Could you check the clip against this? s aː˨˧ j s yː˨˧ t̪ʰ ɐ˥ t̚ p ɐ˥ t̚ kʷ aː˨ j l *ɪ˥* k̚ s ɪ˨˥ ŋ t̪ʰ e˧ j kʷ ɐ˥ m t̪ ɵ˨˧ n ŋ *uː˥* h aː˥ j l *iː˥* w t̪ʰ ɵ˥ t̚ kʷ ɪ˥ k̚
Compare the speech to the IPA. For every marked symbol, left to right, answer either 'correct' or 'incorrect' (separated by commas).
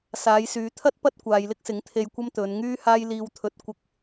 correct, incorrect, correct